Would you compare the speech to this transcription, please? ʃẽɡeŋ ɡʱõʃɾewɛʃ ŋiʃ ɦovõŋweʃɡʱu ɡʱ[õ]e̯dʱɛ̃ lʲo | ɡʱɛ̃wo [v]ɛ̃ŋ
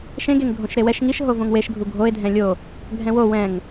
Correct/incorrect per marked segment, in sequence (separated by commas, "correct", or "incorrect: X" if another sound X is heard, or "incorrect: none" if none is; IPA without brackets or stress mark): incorrect: o, incorrect: w